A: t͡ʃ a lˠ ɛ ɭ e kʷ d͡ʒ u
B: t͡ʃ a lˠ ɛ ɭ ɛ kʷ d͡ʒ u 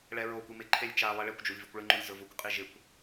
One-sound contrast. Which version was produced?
A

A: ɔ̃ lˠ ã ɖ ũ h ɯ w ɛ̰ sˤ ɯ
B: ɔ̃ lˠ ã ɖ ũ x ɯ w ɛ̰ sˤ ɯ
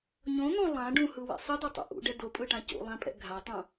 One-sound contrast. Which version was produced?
A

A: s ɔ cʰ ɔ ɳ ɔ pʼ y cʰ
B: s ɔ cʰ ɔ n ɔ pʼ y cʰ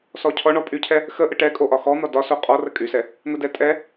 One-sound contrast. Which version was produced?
A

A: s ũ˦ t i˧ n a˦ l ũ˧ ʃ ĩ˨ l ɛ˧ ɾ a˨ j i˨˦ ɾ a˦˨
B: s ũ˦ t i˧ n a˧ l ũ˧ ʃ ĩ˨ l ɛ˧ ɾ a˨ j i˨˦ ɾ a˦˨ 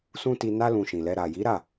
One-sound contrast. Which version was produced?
A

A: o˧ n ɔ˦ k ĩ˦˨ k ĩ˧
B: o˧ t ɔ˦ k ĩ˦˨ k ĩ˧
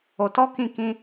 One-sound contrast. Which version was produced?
B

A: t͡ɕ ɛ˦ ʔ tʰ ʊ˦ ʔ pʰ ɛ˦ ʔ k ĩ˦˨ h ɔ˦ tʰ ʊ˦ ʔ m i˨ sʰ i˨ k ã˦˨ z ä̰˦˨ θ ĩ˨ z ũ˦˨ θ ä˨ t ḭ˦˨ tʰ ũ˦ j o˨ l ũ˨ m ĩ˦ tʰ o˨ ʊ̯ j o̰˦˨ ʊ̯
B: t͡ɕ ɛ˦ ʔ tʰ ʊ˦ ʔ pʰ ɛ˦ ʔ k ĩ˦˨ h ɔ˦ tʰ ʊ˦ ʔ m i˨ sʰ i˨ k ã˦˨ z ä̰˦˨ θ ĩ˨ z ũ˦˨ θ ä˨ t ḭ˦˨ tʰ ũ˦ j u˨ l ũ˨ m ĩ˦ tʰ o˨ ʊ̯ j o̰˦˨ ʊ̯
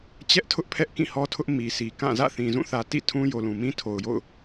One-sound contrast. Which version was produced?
A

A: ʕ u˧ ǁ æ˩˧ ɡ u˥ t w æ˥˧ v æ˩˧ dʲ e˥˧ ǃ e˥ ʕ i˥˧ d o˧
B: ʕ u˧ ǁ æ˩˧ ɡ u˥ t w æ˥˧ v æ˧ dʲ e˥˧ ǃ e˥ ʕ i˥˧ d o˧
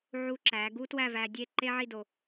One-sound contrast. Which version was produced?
B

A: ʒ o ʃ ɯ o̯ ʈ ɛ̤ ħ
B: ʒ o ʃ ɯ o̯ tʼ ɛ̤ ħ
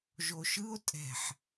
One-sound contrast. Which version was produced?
B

